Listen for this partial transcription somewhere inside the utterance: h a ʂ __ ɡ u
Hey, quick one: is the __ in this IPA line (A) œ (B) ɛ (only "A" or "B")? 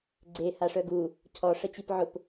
A